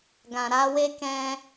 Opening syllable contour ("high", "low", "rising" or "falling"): low